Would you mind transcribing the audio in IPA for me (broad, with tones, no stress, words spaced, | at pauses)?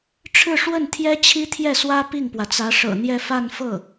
ʈ͡ʂʰɻ̩˥˧ʂwə˥˩nt̪ʰjɛ˥ t͡ɕʰi˥t̪ʰjɛ˥˩swä˥ pi˥˩ŋpwä˩t͡sä˧˥ ʂɤ̰˨˩n̪jɛ˥˧ fa˥˧nfɤ˥˩